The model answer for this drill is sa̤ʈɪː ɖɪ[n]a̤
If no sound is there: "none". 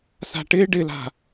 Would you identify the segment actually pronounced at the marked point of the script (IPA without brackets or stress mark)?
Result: l